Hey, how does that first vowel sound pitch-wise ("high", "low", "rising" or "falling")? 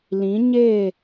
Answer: rising